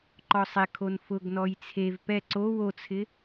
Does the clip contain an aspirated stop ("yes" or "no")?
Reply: yes